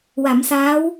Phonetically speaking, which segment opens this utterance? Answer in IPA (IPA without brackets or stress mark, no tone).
w